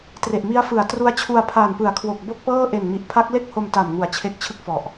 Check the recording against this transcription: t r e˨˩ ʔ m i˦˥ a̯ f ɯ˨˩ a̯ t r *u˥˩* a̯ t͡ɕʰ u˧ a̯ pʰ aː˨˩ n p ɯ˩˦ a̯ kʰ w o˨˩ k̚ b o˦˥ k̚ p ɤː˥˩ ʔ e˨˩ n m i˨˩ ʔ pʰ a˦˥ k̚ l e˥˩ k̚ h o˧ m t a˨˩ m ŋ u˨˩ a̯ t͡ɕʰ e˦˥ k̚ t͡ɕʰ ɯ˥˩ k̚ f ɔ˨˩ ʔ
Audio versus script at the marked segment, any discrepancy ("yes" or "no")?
yes